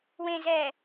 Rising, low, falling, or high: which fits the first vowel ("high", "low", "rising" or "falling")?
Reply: low